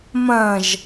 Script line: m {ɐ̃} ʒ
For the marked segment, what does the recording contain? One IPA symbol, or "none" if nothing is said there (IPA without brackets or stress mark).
ɐ̃